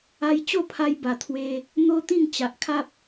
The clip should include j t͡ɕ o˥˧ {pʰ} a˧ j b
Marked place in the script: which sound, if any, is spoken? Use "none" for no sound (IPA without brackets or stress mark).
pʰ